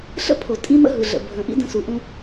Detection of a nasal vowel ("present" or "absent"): present